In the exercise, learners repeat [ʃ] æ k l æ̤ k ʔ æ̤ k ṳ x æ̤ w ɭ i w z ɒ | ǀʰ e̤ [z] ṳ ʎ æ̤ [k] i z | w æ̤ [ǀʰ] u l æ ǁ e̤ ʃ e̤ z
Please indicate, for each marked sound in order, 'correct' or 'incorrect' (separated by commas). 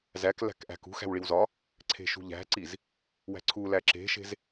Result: incorrect, incorrect, incorrect, correct